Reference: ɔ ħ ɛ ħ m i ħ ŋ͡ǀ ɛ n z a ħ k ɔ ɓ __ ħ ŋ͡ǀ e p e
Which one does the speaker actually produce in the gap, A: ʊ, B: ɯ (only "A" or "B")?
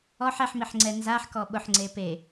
A